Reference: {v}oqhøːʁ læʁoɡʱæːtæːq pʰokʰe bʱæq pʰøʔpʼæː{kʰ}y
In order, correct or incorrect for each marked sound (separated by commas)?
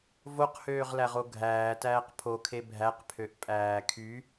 correct, correct